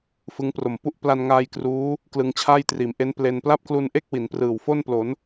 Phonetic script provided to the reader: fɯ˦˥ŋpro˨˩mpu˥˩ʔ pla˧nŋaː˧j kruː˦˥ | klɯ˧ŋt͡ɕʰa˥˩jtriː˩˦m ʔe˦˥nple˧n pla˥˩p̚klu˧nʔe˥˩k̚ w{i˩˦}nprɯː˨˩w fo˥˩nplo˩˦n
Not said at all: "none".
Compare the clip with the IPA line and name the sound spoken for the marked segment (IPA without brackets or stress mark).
i˩˦